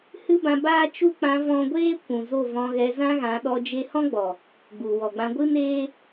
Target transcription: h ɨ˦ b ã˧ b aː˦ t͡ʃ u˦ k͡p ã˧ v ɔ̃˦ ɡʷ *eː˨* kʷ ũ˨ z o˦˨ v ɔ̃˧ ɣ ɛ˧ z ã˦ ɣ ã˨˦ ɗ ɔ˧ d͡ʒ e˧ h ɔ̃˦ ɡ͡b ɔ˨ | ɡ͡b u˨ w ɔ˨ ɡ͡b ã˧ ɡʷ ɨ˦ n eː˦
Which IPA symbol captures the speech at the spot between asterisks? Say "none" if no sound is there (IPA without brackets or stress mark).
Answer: eː˦